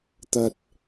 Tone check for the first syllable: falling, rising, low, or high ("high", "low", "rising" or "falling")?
low